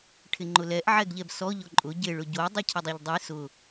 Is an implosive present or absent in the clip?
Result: absent